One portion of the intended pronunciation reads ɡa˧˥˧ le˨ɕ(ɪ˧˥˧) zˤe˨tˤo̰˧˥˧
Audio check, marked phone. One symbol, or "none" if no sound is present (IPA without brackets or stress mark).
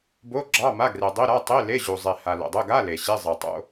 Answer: i˧˥˧